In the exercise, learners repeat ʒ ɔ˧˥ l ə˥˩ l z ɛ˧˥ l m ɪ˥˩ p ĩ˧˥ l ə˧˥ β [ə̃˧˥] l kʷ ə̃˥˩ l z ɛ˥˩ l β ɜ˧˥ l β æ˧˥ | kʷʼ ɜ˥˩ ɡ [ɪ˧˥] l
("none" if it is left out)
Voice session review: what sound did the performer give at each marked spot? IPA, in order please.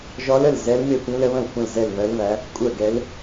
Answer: ə̃˥˩, ɛ˧˥

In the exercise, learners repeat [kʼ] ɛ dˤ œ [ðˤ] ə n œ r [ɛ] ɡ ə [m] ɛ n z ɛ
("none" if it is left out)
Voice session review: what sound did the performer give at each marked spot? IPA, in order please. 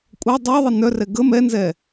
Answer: kʷʼ, ðˤ, ɛ, m

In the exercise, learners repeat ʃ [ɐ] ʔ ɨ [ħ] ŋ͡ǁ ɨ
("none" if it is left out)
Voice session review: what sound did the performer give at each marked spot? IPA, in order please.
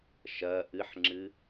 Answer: ɐ, ħ

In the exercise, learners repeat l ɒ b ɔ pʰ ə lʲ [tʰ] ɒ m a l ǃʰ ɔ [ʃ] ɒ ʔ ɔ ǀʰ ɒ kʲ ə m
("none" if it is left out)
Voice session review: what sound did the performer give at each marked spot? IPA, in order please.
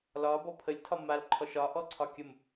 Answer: tʰ, ʃ

